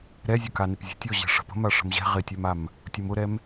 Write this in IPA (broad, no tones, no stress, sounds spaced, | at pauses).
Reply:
ɾ ɛ zʲ ʊ k a n ɪ p zʲ ə̤ tʲ ɔ ʑ ɛ̤ ʂ ə̤ p ə̤ m a ʂ ə̤ m ʑ ɛ̤ ʁ ɪ tʲ œ m a m | tʲ u m ʊ ɾ ɛ m